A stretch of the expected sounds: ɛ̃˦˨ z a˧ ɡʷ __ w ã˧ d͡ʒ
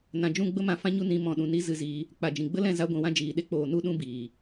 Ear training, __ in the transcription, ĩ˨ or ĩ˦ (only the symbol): ĩ˨